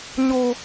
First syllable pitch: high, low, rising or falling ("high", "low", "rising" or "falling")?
high